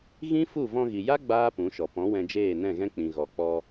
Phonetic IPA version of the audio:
ɣ ĩ˦ f u˦˨ v ɔ̃˧ ɣ i˨ j a˦ ɡ͡b aː˦ p ũ˨˦ ʃ ɔ˨ p ɔ̃˨˦ w ɛ̃˧ d͡ʒ eː˦˨ n ɛ̃˦˨ ɣ ɛ̃˦ k͡p ĩ˨ ɣ ɔ˨ k͡p ɔ˧

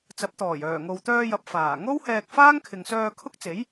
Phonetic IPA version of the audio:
t͡s ɐ˨˥ p̚ t̪ ɔː˨˩ j œː˨˩ ŋ o˨ w t̪ œː˧ j ɐ˨ p̚ f aː˨˩ ŋ o˥ w h ɛː˧ k̚ f aː˥ ŋ kʰ ɪ˨ ŋ s œː˧ kʰ ʊ˥ k̚ t͡s e˨˥ j

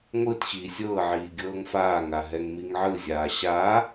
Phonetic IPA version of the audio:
ŋʷ ɯ t ɕ iː sʲ ɤː ʕ iː ɡʲ ɤː ŋ f aː ŋ a ɦ ɛ ŋ m i ŋ ʕ ɯ zʲ aː ɕ a

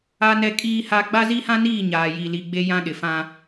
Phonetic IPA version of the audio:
a˦ n ɛ˦ kʼ iː˦ h a˦ ɡ͡b a˦ z i˦ h ã˦ n iː˦˨ ɲ aː˨ j i˨ l i˨ ɡ͡b e˦ j ã˦ ɗ ɪ˨ f ã˦

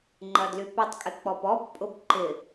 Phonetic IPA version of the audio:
ŋ͡ǃ ɐ d l y p ʏ tˤ kʼ ɪ k͡p ɔ p ɔ b pʼ ʊ b ǃ ɪ

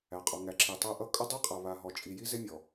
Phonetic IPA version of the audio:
æ˨ qʼ ɔ˨ ŋ æ˨ ǁ i˨ tˤ æ˦ ʔ ʌ˦ kʼ ʌ˦ dˤ i˦ qʼ a˨ β a˨ ɦ ɔ˨ t͡ʃʼ i˨ j i˦ z e˦ mʲ ɔ˨

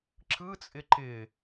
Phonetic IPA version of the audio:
ǁ ɯ t͡sʼ ɪ ǃ ɪ

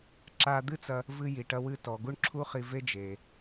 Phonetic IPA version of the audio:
ǁ a˧ d̪ ɨ˥ t͡s ɐ˧ | v ɨ˧ j i˩ ʈ ɐ˧ w ɨ˧ t ɔ˩ ɡ u˥ ɳ ǁʰ u˥ χ i˧ v e˥ d͡ʒ e˩

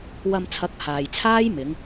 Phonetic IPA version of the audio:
w ɐ˧ m t͡sʰ ɐ˨˥ k̚ h aː˨ j t͡sʰ aː˥ j m ɪ˨˧ ŋ

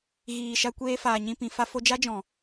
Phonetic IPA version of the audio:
ɣ iː˨ ʃ a˧ kʷ eː˧ f aː˨ ɲ ĩ˧ p ĩ˨ f a˦ f o˧ d͡ʒ a˦ d͡ʒ ɔ̃˨

